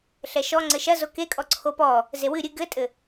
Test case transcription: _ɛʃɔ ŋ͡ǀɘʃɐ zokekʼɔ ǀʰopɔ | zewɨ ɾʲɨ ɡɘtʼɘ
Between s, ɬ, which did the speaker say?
ɬ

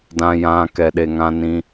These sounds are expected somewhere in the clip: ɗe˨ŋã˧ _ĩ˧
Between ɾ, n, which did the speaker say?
n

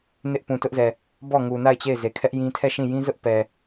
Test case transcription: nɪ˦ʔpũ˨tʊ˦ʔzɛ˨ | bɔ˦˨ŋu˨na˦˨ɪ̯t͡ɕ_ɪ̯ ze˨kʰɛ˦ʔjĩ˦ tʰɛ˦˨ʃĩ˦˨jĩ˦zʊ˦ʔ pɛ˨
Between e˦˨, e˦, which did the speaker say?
e˦˨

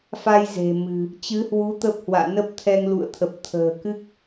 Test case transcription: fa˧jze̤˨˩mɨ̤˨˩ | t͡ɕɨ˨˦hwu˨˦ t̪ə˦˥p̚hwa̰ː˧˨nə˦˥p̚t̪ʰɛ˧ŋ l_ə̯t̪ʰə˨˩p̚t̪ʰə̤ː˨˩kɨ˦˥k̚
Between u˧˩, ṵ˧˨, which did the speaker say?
ṵ˧˨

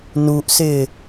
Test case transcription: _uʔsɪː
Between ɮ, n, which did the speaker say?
n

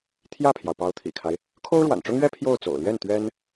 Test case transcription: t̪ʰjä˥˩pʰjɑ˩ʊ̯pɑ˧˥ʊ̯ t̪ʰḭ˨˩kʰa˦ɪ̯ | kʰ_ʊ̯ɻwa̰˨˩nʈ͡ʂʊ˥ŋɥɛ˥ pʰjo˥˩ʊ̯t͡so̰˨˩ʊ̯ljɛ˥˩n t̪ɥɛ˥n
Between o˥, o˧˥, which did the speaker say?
o˥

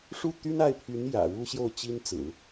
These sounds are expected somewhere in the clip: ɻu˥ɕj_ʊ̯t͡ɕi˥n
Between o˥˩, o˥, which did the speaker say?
o˥˩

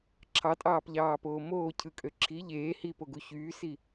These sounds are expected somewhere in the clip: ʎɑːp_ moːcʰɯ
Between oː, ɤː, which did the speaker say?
oː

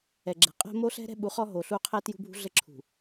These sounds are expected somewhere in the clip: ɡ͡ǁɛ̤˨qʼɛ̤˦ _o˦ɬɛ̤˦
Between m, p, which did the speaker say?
m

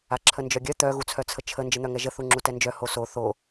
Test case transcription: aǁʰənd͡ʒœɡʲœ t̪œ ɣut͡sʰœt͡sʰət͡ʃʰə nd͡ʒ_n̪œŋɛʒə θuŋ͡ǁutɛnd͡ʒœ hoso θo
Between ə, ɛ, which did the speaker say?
ə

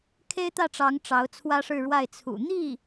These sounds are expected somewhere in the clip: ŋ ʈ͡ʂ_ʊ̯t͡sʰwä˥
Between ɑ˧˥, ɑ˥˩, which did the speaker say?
ɑ˧˥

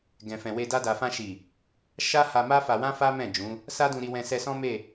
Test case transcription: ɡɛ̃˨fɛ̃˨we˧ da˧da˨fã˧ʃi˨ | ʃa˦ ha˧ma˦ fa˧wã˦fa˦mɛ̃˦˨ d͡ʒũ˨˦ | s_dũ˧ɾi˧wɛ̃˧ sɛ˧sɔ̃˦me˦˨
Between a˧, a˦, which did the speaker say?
a˦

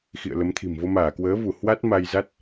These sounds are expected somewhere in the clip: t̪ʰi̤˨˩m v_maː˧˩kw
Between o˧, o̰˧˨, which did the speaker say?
o˧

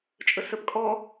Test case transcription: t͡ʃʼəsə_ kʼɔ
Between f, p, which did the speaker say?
p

